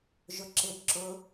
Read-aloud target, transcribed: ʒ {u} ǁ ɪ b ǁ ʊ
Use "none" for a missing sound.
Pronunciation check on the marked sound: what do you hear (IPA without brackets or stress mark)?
ʊ